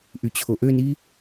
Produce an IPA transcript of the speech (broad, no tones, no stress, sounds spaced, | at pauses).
ʔ y t͡ɕʰ o ʔ ø n i